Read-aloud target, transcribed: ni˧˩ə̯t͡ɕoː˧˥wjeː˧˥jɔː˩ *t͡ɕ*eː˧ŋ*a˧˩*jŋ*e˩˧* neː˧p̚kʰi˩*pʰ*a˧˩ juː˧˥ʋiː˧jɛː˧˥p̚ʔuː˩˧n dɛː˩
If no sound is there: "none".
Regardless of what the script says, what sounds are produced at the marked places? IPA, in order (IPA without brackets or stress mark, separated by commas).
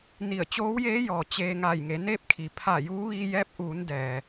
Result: t͡ɕ, a˧˩, e˩˧, pʰ